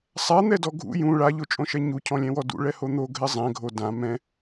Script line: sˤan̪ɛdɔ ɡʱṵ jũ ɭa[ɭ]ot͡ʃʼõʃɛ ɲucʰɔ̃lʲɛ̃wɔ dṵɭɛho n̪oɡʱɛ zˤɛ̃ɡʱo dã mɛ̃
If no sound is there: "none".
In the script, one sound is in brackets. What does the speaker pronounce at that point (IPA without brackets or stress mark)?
ʎ